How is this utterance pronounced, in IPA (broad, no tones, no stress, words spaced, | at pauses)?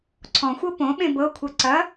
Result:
ǀʰɔ̃xʷɤ põɓẽ bɤkʷʰɤ ǀɐ